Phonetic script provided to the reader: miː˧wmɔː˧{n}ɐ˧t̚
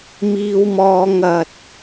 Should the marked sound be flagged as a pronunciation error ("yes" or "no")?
yes